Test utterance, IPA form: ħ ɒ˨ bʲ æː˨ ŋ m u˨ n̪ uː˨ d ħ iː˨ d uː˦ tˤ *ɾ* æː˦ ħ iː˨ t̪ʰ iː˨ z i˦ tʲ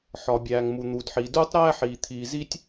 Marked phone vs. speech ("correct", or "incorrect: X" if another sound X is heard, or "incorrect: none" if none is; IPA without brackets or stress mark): correct